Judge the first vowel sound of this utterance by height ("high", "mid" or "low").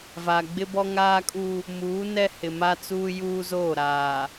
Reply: low